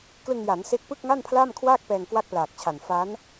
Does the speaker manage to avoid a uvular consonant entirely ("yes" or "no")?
yes